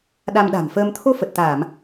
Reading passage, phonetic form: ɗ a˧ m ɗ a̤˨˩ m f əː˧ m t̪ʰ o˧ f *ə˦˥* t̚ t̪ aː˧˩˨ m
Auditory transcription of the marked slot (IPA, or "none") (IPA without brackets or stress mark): ə˨˩